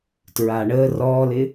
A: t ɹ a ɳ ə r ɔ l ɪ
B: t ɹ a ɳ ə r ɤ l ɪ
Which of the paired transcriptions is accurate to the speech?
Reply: A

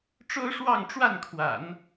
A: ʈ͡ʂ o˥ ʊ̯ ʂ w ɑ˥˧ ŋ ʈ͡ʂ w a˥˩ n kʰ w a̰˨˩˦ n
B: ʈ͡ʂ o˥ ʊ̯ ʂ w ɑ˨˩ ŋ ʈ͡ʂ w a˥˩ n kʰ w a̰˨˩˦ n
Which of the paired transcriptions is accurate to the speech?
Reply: A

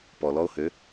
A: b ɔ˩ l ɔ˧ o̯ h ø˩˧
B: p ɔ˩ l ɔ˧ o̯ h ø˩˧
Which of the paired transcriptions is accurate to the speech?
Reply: B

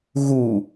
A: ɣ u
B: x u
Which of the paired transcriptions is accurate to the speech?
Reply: A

